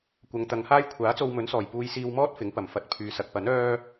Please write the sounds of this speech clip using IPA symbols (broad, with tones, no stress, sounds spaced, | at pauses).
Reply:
kʷ ɐ˨˧ ŋ t̪ ɐ˨˧ ŋ h aː˥ j kʷʰ aː˨˥ t͡s o˧ w m ɵ˨˥ n s ɔː˨˩ j p uː˧ j s iː˧ w m ɔː˥ t̚ f ɪ˨˥ ŋ p ɐ˨˩ m f ɐ˨˥ t̚ pʰ yː˨ s ɐ˨ k̚ p ɐ˨˥ n œː˥